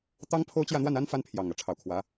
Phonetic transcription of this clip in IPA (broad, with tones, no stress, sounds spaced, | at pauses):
t̪ ɑ˥ ŋ pʰ o˥ ʊ̯ t͡ɕ j ä˥˧ n̪ w a˥˩ n a˥ n f a˥ n pʰ j ɑ˨˩ ŋ ä˧˥ ʈ͡ʂʰ ɑ˨˩ ʊ̯ kʰ w ä˧˥